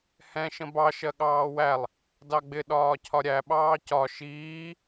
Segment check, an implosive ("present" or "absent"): present